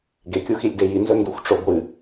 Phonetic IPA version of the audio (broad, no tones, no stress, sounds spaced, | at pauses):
ɡ e kʲ u x i lʲ d e j i n z ɵ n d u xʷ ʈ͡ʂ o ɡʷ ɨ